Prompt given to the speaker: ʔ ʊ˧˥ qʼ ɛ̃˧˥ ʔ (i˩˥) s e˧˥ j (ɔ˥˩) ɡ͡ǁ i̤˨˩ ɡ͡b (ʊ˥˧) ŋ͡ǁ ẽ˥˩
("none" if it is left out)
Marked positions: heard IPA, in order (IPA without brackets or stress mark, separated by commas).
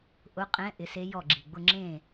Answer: ɪ˩˥, ɔ˥˩, ʊ˥˧